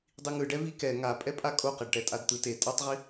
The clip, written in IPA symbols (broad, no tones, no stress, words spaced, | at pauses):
dˤiŋɯɖɛ vikɛ ŋapʼɛpʼa kʼoqɛɖʈɛtʼad t̪ɯte tʼʌtˤʁi